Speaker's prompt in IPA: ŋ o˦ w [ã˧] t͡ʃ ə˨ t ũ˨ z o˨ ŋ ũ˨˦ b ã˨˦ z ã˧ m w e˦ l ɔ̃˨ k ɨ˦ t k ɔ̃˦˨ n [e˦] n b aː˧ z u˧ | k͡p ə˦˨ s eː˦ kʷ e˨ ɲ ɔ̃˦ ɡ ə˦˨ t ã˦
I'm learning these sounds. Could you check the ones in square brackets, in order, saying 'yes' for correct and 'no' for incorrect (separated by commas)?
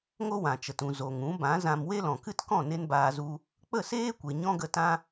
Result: no, yes